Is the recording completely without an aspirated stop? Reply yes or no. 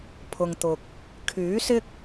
no